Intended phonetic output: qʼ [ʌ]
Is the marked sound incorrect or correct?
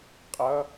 correct